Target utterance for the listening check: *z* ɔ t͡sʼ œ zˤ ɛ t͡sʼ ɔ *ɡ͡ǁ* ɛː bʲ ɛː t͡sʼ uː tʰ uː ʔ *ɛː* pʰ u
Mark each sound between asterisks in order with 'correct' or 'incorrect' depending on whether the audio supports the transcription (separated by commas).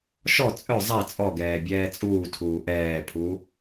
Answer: incorrect, incorrect, correct